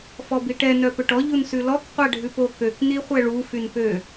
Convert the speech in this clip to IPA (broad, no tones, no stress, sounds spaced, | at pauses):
f ɔ b i ʈ ɛ n œ p ø ʈ ɔ ʎ u n s ʉ l ɔ k qʷ æ ɖʱ ʉ p o k ø k n i χʷ ɛ ɭ u f y n p ø